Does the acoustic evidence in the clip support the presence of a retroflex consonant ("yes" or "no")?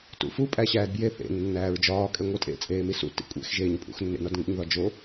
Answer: no